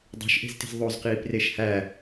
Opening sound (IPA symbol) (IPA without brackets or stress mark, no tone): dˤ